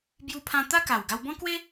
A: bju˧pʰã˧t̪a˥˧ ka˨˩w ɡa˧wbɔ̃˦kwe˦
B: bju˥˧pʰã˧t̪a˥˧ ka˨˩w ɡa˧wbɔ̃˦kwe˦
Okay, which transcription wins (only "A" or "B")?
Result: A